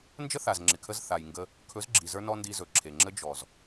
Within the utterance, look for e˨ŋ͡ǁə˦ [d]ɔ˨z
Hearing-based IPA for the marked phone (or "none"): d͡ʒ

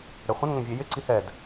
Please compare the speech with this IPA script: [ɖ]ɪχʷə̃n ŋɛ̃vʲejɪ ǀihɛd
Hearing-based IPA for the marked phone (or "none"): ɽ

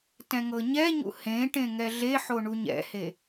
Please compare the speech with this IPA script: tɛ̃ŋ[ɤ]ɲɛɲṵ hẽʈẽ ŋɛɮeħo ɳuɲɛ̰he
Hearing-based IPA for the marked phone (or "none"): ɤ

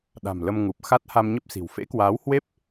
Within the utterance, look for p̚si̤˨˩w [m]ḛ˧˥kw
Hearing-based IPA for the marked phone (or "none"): f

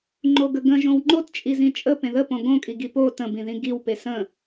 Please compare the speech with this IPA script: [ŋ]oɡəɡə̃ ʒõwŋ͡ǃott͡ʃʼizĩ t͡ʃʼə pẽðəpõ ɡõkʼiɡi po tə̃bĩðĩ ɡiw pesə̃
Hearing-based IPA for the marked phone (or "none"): ŋ͡ǃ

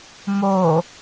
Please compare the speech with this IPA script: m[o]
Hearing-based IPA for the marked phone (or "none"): o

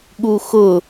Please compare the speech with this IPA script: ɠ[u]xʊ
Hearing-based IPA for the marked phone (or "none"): u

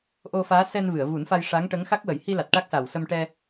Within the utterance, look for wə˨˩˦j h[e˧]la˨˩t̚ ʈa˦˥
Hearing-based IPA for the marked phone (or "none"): i˧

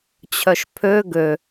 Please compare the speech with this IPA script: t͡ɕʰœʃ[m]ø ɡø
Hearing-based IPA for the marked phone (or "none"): pʰ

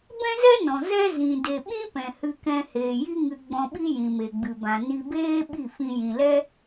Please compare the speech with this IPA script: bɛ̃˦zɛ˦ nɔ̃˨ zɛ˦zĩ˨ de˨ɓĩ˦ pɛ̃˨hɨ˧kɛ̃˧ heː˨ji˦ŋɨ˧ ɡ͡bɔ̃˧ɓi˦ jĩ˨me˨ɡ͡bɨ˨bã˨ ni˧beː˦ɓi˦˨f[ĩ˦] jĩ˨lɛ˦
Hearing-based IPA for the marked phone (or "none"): ĩ˧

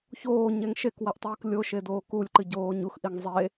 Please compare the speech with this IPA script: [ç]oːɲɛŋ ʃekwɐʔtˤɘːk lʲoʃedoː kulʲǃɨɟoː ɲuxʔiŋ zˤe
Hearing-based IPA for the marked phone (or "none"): ç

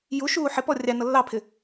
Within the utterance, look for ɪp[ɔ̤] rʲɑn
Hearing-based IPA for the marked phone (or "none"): ɔ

